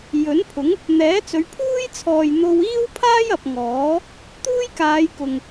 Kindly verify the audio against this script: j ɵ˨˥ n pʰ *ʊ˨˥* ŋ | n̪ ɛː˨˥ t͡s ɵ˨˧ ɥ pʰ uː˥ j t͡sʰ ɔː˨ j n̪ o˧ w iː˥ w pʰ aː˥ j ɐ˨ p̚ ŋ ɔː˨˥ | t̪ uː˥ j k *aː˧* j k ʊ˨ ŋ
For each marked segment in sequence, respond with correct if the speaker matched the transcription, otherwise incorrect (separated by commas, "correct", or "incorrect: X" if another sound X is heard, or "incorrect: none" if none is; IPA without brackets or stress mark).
correct, incorrect: aː˨˧